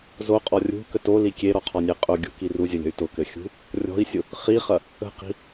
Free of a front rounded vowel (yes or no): no